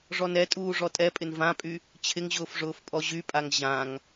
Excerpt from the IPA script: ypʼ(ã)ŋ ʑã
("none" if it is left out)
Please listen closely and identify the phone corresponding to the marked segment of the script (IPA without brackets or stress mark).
a